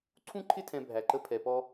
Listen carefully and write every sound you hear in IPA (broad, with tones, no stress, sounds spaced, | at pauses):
ǀʰ ũ˥ ǃʰ ɪ˥ tʰ ɛ̃˧ bʱ æ˧ ǃ ə˥ pʰ ɛ˧ p ɔ˥